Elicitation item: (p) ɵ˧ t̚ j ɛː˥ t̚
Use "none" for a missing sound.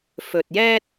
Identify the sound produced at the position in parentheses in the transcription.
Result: f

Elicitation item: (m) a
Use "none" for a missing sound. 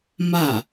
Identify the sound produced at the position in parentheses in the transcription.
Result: m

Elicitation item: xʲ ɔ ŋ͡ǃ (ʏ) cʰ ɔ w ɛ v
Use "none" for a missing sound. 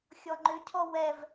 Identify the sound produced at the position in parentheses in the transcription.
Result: ʏ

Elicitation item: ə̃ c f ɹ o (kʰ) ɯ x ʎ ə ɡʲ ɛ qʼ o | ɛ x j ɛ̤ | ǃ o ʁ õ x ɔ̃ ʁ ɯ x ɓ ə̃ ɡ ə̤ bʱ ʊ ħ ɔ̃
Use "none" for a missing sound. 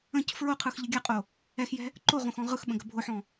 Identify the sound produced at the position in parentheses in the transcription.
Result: qʰ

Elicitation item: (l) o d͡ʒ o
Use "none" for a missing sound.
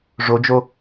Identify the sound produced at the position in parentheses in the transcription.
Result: ʐ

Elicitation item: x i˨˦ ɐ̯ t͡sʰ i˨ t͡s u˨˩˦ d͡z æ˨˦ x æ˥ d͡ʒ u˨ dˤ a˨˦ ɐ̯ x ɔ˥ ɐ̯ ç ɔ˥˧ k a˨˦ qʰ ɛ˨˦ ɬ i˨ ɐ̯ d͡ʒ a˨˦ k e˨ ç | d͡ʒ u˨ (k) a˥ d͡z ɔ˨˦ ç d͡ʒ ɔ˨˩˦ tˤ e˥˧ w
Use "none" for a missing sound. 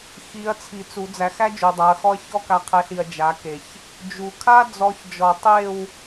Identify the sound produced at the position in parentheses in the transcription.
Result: kʰ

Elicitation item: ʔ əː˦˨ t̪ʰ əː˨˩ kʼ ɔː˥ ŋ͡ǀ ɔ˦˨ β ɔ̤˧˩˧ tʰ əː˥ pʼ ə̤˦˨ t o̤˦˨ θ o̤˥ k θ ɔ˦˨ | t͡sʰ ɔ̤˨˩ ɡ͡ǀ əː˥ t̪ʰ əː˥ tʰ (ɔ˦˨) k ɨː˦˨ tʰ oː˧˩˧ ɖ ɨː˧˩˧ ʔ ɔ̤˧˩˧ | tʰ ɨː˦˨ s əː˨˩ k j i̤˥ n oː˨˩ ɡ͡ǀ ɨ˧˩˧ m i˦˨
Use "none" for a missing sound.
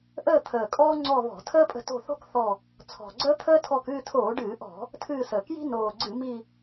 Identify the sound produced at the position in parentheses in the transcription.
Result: ɔ˦˨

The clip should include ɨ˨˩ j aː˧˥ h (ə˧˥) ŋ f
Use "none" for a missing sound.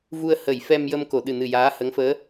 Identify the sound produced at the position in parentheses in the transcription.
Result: ə˧˥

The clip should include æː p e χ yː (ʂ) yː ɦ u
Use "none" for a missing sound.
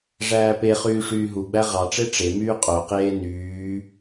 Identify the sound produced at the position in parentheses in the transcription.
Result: ʂ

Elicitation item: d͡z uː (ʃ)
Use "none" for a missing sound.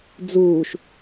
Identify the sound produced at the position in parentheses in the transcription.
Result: ʃ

